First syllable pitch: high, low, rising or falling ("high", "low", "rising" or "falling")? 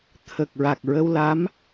low